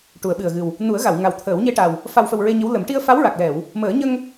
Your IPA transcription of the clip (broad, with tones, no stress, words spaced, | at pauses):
ʈu˨˩˦ə̯ɓɨ˨˩ə̯ɣɨ˨˩w | nu˨˩˦ə̯ɣa˨˩˨wŋa˨˩w t̪ʰəː˨˩˦wɲe˧ʈa˨˩w | fa˨˩wfə˨˩w ɹe˧ɲə˧˥wlə˨˩˦m ʈi˧ə̯fa˧˥wɹa˨˩k̚ lɛ˨˩˨w | məː˨˩˦ɲə˧ŋ